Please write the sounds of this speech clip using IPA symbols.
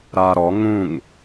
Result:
ɾ a ɾ ɔ ŋ ũ ŋ

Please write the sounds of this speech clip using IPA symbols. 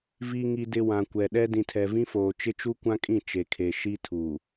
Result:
v i˨ ŋ i˨ d ɪ˨ w ã˨ kʷ ɛ˨ ɗ ɛ˦ d ĩ˨ tʰ ɛ˨ v ĩ˦ f oː˨ t͡ʃ ɪ˦ t͡ʃ u˦ kʷ ã˦ kʼ ĩ˦˨ t͡ʃ e˨ kʰ e˨ ʃ i˦ tʰ u˨

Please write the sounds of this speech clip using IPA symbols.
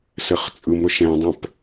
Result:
s ɘ χ t͡sʼ ɯ m ɾ ʊ ʃ ɛ̃ dˤ ɛ̃ p

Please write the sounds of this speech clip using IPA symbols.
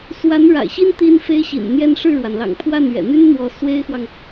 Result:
s w a˧˥ n ɻ a̰˨˩ ɪ̯ ɕ i˥ n t̪ i˥ n f e˥ ɪ̯ ɕ ḭ˨˩ n n̪ j ɛ˥ n ʂ ɻ̩˥˩ ɻ w a˩ n l ɑ̰˨˩ ŋ pʰ w a˥˩ n ɥ ɛ̰˨˩ n̪ y˥ n n̪ w ɔ˧˥ s w e˥ ɪ̯ x w ɑ˨ ŋ

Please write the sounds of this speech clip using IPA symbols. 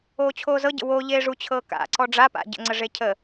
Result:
oː t͡ɕʰ oː z ɤ ɟ ə̰ w o ʎ eː ʐ u t͡ɕʰ ɤː k a̰ ǀ ɔ ɖ͡ʐ a p a̰ ɟ ə̰ ŋ͡ǀ ə ʐ e cʰ ə

